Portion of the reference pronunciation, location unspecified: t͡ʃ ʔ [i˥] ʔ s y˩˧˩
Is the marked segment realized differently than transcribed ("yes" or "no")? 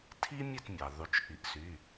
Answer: yes